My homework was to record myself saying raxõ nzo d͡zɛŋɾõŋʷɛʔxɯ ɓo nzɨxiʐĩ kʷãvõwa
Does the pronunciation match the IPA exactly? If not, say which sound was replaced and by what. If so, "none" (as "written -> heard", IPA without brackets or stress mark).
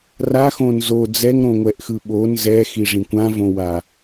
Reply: ɨ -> ɛ